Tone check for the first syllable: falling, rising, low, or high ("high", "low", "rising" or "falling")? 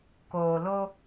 low